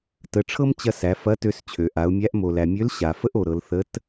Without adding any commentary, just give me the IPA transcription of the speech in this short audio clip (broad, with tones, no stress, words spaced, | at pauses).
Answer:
tə˩˧ʈ͡ʂʰɤ˥mt͡ɕɐ˧ sæ˩˧fɐ˧˥tø˧s t͡ɕʰø˩ʔa˩˧ʊ̯mʲæ˧˥ʔ mo˩læ˩mʲø˧˥l ɕa˩fə˥ʔ o˩ɾɤ˩˧l θə˧˥t